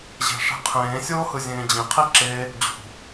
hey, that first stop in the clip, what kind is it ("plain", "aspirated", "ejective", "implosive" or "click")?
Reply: aspirated